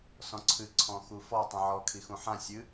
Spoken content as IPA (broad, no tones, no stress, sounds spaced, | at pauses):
s ɔ̃ ǀʰ ɨ ǀʰ ɔ̃ x u f ɔ tˤ ũ ʕ ɔ kʰ i x ũ ħ ã sʲ ɨ